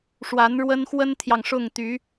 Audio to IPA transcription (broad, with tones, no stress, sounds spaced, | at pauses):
ʂ w a˧˥ n ɻ w ə˥ n x w ə˥ n t̪ʰ j ɑ˨ ŋ ʂ ʊ˥˩ ŋ t̪ y˧˥